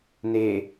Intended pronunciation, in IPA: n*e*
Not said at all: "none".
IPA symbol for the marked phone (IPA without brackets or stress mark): e